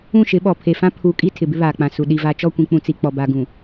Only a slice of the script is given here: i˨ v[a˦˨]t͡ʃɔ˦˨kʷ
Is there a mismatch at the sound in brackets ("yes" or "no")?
yes